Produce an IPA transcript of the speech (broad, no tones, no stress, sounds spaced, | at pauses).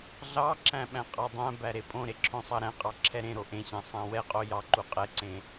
ɮ ɑ ǁ æ̃ ɓ æ̃ qʼ ɑ dˤ æ̃ b æ ɾ e pʼ õ ɾ e ǁʰ õ sˤ ɑ ɾ æ̃ qʼ ɑ ǁʰ ɛ ɾ ẽ ɾ o ʔ ẽ ɕ ã sˤ ã w ɛ qʼ o j ɑ ǃ u qʼ ɛ ǀ ẽ